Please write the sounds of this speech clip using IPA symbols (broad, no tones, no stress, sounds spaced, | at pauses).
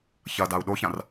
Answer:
ç ɐ d a u̯ ɗ o ç ã r